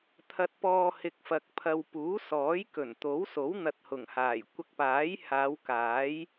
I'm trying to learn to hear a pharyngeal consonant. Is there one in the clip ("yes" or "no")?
no